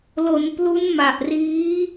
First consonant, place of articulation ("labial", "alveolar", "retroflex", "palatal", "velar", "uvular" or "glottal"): alveolar